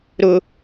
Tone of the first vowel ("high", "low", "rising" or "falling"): high